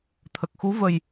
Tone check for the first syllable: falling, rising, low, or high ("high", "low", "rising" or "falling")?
low